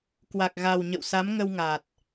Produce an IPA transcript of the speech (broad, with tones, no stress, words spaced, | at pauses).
kwa˨˩k̚ɣa˨˩w ɲə̰˧˨wsa˨˦mŋə˧wŋa˨˩t̚